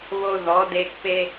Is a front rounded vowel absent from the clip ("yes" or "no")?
yes